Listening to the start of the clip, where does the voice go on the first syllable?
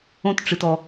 high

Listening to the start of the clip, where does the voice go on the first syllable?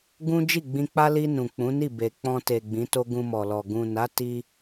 high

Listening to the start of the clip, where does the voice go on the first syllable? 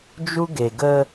high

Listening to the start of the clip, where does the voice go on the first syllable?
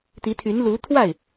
rising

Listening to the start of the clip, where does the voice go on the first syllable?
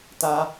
high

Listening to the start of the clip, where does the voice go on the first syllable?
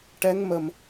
rising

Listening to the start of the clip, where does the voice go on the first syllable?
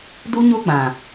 high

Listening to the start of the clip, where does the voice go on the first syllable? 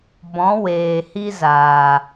rising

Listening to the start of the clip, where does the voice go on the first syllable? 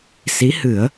rising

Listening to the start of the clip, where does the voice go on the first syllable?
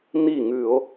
falling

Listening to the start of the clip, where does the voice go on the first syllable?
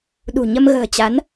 low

